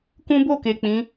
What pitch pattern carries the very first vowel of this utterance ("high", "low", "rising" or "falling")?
high